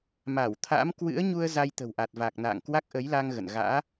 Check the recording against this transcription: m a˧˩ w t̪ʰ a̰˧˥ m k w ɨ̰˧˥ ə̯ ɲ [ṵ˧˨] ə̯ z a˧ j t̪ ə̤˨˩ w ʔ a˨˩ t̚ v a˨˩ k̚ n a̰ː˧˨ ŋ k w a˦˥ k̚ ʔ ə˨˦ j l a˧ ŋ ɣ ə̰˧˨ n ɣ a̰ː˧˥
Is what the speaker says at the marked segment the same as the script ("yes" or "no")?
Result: no